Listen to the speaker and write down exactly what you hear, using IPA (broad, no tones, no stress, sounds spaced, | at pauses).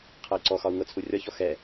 qʰ ɤ i̯ ǀ ɔ x ɒ u̯ ŋ ɤ t͡sʰ u rʲ ɒ ç ɔ x ɛ